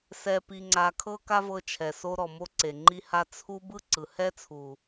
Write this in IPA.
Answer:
s ɛ˧ p i˧ ŋ͡ǀ a˧ kʰ ɤ˦ k a˦ v ɤ˧ t͡ʃʰ ɛ˨ s o˧ ɾ ɔ˨ m o˧ ǀ e˨ ŋ͡ǃ i˧ h a˧ t͡sʰ u˧ b ɯ˦ ǀ ɯ˨ h ɛ˦ t͡sʰ u˨

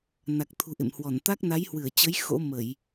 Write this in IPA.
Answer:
n a˨˩ k̚ t̪ʰ ṳ˨˩ ʔ ḛ˧˨ m h w ɔ˧˩ n t̪ a˦˥ k̚ n a˨˦ j h w ɨ˧˩ ə̯ t͡ɕ ə˨˦ j x o̰˧˥ m ə˧˩˨ j

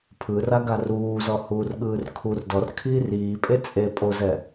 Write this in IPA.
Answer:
pʰ ɯ r a ɡ a r uː z ɔ h uː r ɠ ɯː r kʰ u r d ɔ r kʰ iː r iː pʼ e t͡sʼ e pʼ o z ɛ

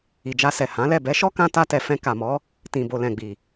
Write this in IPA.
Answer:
i˨ d͡ʒ a˧ s ɛ˨ h ã˨˦ l ɛ˦˨ b ɛ˨˦ ʃ ɔ˦ k ã˧ t a˧ t ɛ˨ f ɛ̃˧ k a˨ m ɔ˨˦ | t ĩ˨ b o˨ l ɛ̃˨ ɡ͡b i˨

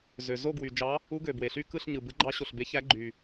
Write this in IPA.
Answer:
z ø˨ z o˥˧ ɡ w y˨ d͡ʒ ɑ˧˥ | u˧˥ ɡ ø˨ b w e˨ ɬ y˥˧ k ɯ˥˧ ɬ ɲ ɯ˨ b ɯ˧˥ ɡ͡ǃ ɑ˧˥ ɕ o˨ ɬ b e˧˥ ç æ˧˥ ɡ͡ǃ y˨

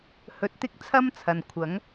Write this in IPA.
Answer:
h ɵ˧ t̚ t̪ ɪ˥ k̚ t͡sʰ ɐ˥ m t͡sʰ ɐ˨ n kʷʰ ɐ˨˥ ŋ

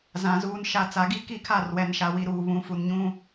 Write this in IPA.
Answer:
z ã˨ z uː˨ n ʃ a˨ t͡s a˨ ɡ i˦ k i˦˨ kʰ a˦˨ r w ɛ˨ n ʃ a˨ w i˨ ɾ uː˨ β ũ˨˦ f u˨ n ɲ ũ˦

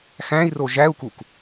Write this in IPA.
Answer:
x æ̃ i̯ r o ʒ æ u̯ k u k

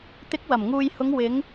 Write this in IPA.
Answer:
t̪ ɪ˨˥ k̚ w ɐ˨˩ m ŋ uː˨ j h ʊ˨˧ ŋ w ɪ˨˧ ŋ

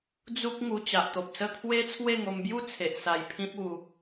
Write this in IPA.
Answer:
d͡z u˦ k̚ ŋ u˧ t͡ɕ a˨ ʔ t̪ o˨ p̚ s ə˥˧ t̪ʰ w e˦ t͡sʰ w e˥˧ ŋ o˧ m b j u˦ t͡sʰ e˨ ʔ s a˧ j pʰ ĩ˦ p̚ u˧

